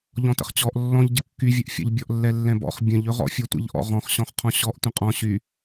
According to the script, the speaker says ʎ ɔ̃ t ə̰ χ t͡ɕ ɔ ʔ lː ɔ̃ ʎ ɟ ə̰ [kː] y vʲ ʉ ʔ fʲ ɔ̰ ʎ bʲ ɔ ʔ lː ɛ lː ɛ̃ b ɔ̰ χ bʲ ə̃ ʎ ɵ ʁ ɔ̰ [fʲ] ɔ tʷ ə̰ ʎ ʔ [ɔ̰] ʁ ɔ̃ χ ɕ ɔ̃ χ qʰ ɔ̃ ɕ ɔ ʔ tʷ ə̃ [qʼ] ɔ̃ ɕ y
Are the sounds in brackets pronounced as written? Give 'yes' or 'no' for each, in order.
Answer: yes, yes, yes, yes

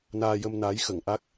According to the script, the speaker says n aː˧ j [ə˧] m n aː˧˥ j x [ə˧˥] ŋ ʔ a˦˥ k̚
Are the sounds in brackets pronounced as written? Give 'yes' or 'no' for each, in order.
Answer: yes, no

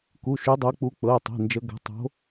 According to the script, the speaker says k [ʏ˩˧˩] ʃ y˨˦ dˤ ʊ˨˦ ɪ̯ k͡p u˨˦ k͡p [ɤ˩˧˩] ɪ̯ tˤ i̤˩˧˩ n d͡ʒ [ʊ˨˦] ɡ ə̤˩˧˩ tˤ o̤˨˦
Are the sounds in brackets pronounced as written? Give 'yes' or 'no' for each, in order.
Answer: no, yes, no

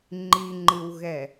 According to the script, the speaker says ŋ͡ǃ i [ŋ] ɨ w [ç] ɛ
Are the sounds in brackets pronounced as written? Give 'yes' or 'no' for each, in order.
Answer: no, no

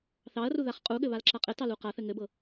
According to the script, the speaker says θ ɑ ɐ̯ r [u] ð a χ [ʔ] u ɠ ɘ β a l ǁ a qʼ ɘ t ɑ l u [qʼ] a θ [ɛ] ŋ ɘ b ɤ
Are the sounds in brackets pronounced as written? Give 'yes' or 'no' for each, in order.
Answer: yes, no, no, no

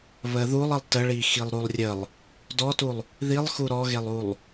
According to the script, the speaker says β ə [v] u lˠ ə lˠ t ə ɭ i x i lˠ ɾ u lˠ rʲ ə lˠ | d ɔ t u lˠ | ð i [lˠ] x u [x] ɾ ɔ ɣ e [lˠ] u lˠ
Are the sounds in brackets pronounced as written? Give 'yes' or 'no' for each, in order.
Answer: no, yes, no, yes

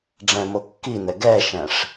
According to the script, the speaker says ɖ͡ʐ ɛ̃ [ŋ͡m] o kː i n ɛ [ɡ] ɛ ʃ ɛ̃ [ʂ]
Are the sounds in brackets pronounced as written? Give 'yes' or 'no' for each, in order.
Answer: no, yes, yes

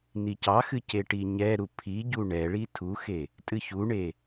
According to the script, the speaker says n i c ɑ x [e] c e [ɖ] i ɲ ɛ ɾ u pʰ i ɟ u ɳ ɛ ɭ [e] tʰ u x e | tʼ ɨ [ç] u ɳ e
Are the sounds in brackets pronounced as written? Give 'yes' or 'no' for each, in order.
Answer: no, no, no, yes

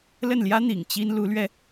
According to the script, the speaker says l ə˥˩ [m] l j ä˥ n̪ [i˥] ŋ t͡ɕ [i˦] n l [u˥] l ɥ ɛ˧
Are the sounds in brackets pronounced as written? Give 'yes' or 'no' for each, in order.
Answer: no, no, no, no

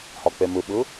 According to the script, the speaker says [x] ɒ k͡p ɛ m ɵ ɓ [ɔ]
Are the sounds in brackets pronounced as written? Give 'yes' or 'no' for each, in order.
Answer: no, no

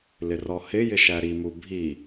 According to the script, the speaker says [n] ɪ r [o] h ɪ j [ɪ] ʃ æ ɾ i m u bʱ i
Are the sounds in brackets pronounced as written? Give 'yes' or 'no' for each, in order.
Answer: no, no, yes

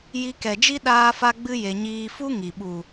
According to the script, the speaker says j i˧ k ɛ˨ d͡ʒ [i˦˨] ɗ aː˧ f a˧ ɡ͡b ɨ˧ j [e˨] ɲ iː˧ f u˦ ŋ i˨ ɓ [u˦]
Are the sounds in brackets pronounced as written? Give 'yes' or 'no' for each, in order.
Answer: no, yes, no

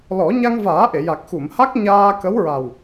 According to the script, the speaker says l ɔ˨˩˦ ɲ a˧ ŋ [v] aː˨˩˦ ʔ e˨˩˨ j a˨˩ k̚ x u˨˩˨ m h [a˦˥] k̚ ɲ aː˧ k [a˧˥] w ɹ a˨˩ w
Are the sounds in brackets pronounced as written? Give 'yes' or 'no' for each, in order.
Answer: yes, yes, no

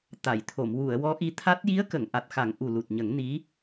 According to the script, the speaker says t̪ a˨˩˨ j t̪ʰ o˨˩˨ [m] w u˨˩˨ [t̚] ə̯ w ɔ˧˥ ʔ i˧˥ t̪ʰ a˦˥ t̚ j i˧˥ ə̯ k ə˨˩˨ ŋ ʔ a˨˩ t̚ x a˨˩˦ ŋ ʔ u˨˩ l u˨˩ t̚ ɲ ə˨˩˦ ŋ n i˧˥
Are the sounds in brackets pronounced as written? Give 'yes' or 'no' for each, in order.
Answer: yes, no

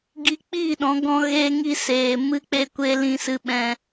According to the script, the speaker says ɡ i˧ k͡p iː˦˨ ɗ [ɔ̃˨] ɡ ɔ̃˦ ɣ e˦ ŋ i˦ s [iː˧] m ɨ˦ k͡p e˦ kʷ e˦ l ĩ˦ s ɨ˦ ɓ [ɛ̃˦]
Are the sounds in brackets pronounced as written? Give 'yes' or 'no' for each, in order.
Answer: no, no, yes

